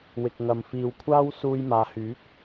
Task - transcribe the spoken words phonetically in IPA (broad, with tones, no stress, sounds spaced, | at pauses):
w ɪ˨ k̚ ŋ ɐ˨ m f iː˨ w kʷʰ aː˥ w s uː˧ j m aː˨ h yː˨˥ k̚